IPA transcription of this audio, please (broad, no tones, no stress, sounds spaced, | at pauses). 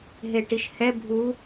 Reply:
ɦ e ʈ i ʃ h ɛ bʱ u